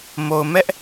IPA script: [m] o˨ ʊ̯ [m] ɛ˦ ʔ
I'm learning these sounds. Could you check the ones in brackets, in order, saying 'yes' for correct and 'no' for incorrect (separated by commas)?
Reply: yes, yes